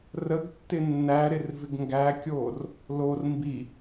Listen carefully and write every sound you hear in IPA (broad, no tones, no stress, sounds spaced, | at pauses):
r ə ɡ tː ɪ nː æ ɾ ɪ r v ɪ ɡ ŋ ɡ æ kʲ oː r | l o r m b i